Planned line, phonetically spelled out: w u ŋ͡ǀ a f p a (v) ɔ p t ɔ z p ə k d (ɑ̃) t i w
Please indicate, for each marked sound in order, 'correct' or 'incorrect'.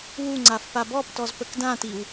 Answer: incorrect, incorrect

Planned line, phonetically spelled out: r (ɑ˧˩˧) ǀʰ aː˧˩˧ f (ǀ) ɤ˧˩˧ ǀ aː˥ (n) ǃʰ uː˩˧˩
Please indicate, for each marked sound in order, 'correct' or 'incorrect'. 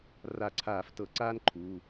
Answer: incorrect, incorrect, correct

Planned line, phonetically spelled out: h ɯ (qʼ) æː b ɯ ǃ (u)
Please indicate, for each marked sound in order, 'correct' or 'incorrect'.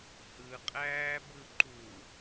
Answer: correct, correct

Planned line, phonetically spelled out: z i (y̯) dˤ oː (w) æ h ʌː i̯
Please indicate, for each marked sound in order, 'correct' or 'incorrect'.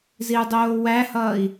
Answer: incorrect, correct

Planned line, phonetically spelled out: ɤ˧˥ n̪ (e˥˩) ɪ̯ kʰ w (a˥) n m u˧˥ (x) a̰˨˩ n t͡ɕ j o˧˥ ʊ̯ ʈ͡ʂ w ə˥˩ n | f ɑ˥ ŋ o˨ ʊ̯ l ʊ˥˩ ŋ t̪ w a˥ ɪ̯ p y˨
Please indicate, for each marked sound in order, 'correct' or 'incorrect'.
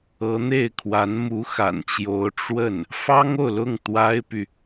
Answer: correct, incorrect, correct

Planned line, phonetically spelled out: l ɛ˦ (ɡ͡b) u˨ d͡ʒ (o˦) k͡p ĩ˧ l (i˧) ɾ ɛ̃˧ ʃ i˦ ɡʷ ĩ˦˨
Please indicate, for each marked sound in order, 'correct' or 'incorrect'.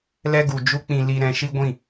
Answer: incorrect, incorrect, correct

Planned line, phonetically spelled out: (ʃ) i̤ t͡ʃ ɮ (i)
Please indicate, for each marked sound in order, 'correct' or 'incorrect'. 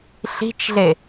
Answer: incorrect, incorrect

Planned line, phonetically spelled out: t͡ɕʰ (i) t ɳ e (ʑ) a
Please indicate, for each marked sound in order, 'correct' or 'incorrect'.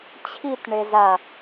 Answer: correct, incorrect

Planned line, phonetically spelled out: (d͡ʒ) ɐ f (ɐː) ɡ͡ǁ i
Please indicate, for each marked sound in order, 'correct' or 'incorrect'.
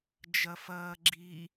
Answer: correct, correct

